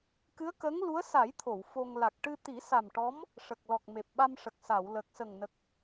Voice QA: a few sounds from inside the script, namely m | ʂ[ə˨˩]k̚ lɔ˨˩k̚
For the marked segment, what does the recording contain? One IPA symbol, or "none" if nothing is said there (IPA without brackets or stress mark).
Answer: ə˨˩